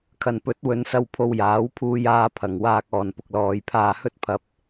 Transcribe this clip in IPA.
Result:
kʰ ɐ˨˩ n p ɵ˨˥ t̚ w ɵ˨˧ n s ɐ˧ w pʰ o˧ w j aː˨˥ w pʰ uː˧ j aː˧ pʰ ɐ˨ ŋ w aː˧ k̚ ɔː˨ n p ʊ˧ k̚ l ɔː˨˧ j pʰ aː˧ h ɵ˥ t̚ pʰ ɐ˧ p̚

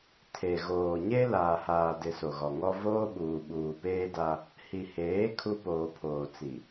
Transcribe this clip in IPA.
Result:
tʰ e˨ ɣ oː˨ ɲ e˦ l aː˨ h aː˨ d ɪ˨ s o˨ ɣ ɔ˨ ŋ ɔ˦ v oː˦ ɓ uː˨ ɓ uː˨ p eː˦ d a˦ | h i˨ h eː˨˦ kʰ u˦ p oː˨ pʰ oː˨ t͡s i˨

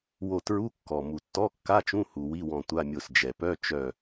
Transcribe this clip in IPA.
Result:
w o˧˩ t ɹ u˧˥˧ kː ɔ˩ m u˩ tː ɔ˧˥˧ kː a˧˥˧ t͡ʃ ũ˧˥˧ h u˩ w i˧˥˧ w ɔ̃˧˩ tʷ a˧˥˧ mʲ o˧˩ s d͡ʒ ɛ˩ p œ˧˥˧ t͡ʃ œ˧˩

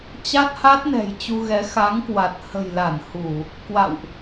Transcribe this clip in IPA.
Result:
t͡ɕ a˦˥ t̚ h a˦˥ t̚ n ɛ̤˨˩ j t͡ɕ u˧ ɣ ɛ˨˦ x a˨˦ ŋ k w a˨˩ t̚ h ə̤˨˩ j l a˧˩ n h u˧˩˨ | k w a̰˧˨ w ʔ

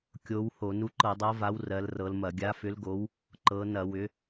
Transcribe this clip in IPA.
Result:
kʲ o˨˦ w h o˧˩˧ n u˨˦ ǃ ɤ˧˩˧ dˤ ɤ˨˦ v a˨˦ w r ɜ˨˦ l r ɤ˨˦ l m ɐ˧˩˧ ɡʲ a˨˦ f ʏ˨˦ l ɡ o˨˦ w | ǃ ɤ˨˦ n ɐ˧˩˧ w ʏ˨˦

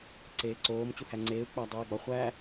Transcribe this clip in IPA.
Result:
ǀ eː ǀ oː m t͡ɕ u h æ ŋ͡ǀ eː u̯ k͡p æ dˤ iː ɡ͡b ɒ χʷ æ

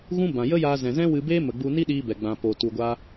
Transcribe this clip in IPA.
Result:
ɣ ũ˦ b ã˨ j ə˦ j aː˧ z ɛ̃˨ z ɛ̃˦ w ɨ˧ b eː˦ m ə˨ ɡ͡b u˧ n i˦ ɗ iː˧ b ɛ˨ ɡ͡b ã˨ p oː˨ t u˧ ɡʷ aː˦

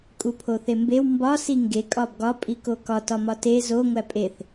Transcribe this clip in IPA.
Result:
kʼ u pʰ o θ e m b e w m b ɒ s i ŋ ɡ e kʼ ɒ b ɡ ɒ pʼ i k o k ɒ t ɒ m ɒ t e z o ŋʷ æ pʼ e θ

